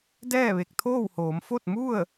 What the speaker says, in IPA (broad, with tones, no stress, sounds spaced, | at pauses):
d ɛː˥˨ ʋ e˧˩ k̚ t̪ʰ oː˥˨ w h oː˩˧ m f o˥˨ t̚ m u˥˨ ə̯